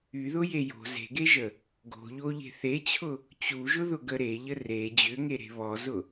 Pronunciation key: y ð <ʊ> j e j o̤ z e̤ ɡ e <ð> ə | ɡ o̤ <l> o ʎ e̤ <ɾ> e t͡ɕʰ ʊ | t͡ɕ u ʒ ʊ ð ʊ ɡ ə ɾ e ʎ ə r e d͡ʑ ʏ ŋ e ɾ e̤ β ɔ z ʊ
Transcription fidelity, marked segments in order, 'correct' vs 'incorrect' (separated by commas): correct, incorrect, incorrect, incorrect